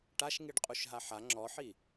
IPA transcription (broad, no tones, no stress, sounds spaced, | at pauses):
ʈ a ʃ ŋ i ɖ qʼ u ʃ ɦ a ħ a ŋ͡ǁ ɔ ħ i